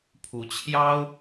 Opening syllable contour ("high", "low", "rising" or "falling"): rising